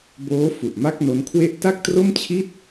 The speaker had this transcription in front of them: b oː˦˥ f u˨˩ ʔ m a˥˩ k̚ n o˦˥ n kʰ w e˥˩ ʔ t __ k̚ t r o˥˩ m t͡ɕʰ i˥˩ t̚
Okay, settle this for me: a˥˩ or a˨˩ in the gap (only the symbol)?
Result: a˥˩